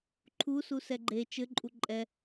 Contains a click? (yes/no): yes